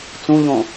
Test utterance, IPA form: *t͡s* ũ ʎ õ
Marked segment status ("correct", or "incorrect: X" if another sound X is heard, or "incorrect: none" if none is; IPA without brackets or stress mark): correct